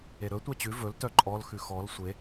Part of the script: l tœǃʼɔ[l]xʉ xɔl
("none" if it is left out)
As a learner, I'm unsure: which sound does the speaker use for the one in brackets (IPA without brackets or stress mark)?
l